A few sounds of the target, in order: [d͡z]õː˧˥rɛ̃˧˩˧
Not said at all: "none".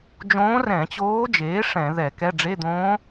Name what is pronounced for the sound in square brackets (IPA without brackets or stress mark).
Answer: d͡ʒ